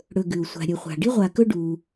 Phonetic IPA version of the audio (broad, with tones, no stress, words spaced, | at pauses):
ɽɵ˩ ɡʉ˩u̯sʷa̤˨ɾʲɵ˨ χʷa̤˩ɖi˦ʁʷa˨kɵ˦ ɖu˨